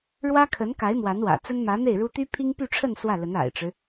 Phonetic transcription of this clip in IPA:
ɻwä˥kʰə˧˥nka˧˥ɪ̯ mwa˧˥nwä̰˨˩ t͡sə˥n mä˧˥n̪e˥˩ɪ̯ ɻu˥ t̪y˥pʰi˥ŋpy˥˧ʈ͡ʂʰə˥˧n swä˥˩lə˧˥n a̰˨˩ɪ̯ʈ͡ʂɻ̩˦

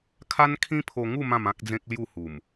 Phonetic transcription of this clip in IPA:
kʰa˦nkʰĩ˦pʰo˧ŋu˥˧ mã˥˧mã˦k̚d͡zẽ˦k̚lju˥˧ hu˨˩m

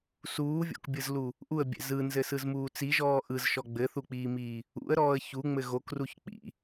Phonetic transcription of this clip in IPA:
suːvʲo̰kbʲɯzlu | ʔuə̯bʲɛ̰ zɯnzɘsɯzmuː t͡siʒɔː ʔɯzʃɔ ɡ͡bɘθuk͡piːmiː | ṵə̯ɾɔːə̯ çuŋ͡mɘ ɣokruç k͡pḭ

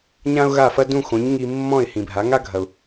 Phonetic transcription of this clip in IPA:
ɲã˥ʊ̯ɣa˥˩fɐ˥ dũ˥˩xõ˩˥ɲŋi˧ mːɔ̃˥˩ɪ̯ hĩ˩bʱa˩˥ŋa˥ɡʱɐ˩ʊ̯

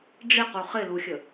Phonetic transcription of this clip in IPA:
ɖ͡ʐɪqu χɪluxʲə

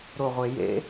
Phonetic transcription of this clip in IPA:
ɾʊʁʷe jḛ

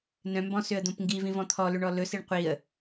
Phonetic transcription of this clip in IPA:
nœ̃ mbɔ̃søə̯d̪õp ŋɡivĩvɔ̃ t̪ʰɔlɵɳɔ lɵsiɳ qʷiə̯

